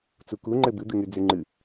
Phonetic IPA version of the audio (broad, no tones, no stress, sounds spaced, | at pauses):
t͡s u k u ŋ͡ǃ ɘ b ɨ d̪ ɨ ŋ y d͡z y ŋ͡ǃ ɨ